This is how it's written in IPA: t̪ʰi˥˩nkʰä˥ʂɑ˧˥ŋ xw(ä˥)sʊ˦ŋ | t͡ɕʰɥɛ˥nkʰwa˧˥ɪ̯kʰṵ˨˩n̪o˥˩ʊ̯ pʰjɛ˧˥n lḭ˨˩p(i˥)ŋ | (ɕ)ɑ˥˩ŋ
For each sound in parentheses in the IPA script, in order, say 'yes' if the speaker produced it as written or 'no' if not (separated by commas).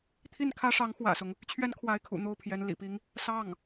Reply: no, yes, no